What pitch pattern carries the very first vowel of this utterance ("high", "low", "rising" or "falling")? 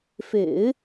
low